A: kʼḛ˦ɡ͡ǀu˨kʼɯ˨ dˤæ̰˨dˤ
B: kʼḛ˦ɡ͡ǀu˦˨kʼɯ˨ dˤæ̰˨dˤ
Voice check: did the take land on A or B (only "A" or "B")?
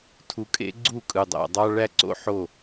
B